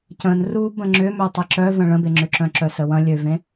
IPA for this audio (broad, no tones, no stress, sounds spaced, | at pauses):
c ə̃ n r u b ə̃ ŋ͡ǁ ʏ m ø tˤ i ǁ œ v ə̃ ɭ ə̃ b e ŋ͡ǁ ʏ ǁ œ̃ ǁ œ s ə w ɐ̃ lʲ ø v ẽ